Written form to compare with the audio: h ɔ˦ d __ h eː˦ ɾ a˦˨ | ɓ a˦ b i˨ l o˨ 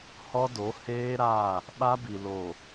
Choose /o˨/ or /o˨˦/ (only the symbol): o˨˦